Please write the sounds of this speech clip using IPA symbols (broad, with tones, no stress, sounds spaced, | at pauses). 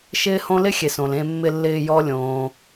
ʃ ɪː˦ h õ˦ l ɪ˥ xʲ e˩ s õ˩ l ẽ˨ mː ɪ˨ lː ɪː˨ j ɔ˦ lʲ õː˩